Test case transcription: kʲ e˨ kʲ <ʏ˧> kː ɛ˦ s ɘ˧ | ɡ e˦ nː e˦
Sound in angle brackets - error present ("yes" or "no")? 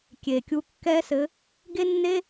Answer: yes